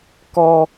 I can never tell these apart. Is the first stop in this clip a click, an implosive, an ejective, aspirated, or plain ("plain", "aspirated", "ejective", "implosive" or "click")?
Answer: plain